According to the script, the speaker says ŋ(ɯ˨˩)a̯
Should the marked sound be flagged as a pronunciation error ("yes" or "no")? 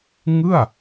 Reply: yes